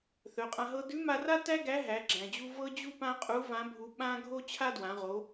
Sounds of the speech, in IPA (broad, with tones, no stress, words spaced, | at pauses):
θœ˩˧qʼã˧ɦɤ˥ dʉ˧˥ma˧ra˥ tæ˥ ɡæ˧˥ɦæ˩˧ɡ͡ǁæ̃˩d͡ʑu˧ vɤ˥d͡ʑu˥pã˥qʼu˧˥ vã˧˥bʱu˧ ɓã˥ ɡʱo˥t͡ɕʰa˥dwã˩˧ʁo˩˧